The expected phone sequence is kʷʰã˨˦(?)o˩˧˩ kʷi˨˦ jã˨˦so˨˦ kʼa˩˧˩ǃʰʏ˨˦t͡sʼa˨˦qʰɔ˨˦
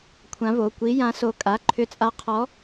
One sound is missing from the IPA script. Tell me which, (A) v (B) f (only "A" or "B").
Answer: A